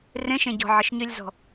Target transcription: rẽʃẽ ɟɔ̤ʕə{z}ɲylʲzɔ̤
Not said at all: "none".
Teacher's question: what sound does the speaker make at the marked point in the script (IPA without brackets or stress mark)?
ʃ